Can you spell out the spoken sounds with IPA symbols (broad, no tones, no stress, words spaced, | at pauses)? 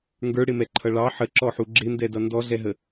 ŋɡə˞ɽɪmɛǃʰʌ ɭɑ ħəǁɔħu ɡ͡ǁɪndɛdʌ ndɔɮɛɦə